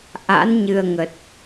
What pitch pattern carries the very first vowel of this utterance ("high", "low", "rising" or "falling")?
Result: rising